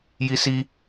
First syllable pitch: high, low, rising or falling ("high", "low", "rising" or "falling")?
high